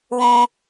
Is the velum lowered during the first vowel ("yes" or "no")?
yes